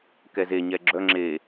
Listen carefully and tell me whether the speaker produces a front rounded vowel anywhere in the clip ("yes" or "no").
yes